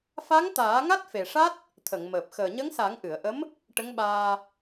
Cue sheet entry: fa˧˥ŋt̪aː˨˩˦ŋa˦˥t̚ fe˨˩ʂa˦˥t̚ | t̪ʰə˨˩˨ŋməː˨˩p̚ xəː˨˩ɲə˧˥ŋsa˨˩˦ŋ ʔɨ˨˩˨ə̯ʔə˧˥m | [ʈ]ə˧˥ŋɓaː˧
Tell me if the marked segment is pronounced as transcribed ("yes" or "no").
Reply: yes